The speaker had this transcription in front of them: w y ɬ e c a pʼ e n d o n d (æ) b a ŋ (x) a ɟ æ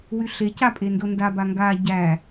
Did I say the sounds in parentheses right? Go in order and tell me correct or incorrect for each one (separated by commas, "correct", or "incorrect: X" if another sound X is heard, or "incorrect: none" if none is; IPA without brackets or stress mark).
incorrect: a, incorrect: ɡ